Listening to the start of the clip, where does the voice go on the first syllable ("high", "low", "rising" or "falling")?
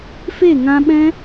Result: falling